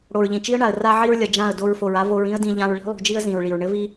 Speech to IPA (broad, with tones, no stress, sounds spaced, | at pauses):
ɽ o˨ ɹ ʎ ĩ˨ t͡ʃ i˦ ə̯ ɳ a˨ ə̯ r a˧ ʕ i˧ ɹ lʲ ɐ˨ d͡ʒ ã˦˨ ə̯ d o˧ ɹ f o˨ ɹ a˦ v o˧ ɹ ĩ˦ ə̯ d ĩ˧ ʎ ã˧ ɹ ɭ i̤˦ lˠ ṳ˧ d͡ʒ i˦ ə̯ z ĩ˨ ɹ ɭ i˨ ɹ ɳ ɘ˦ v i˦